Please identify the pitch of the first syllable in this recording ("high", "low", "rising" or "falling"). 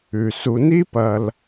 low